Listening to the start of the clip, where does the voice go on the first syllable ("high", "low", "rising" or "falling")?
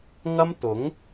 high